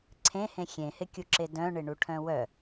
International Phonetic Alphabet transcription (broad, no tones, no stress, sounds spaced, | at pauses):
ǀʰ ẽ h ẽ xʲ ẽ h ɪ kʲ u ǁ e d œ̃ ɳ ɪ ɳ u ʈʰ œ̃ w œ